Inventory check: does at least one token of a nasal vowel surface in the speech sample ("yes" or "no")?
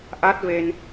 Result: no